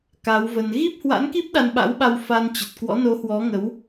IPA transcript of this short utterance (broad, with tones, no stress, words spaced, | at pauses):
ka˨˦wvə˧n ɣi˦˥p̚hwa̰˧˥nki˦˥p̚ ɗa˧nɓa̰˧˥wɓa˧w fa˧n t͡ɕə˨˩t̚kwɔ̰˧˥no˨˦hwɔ˨˦ ŋə˨˦w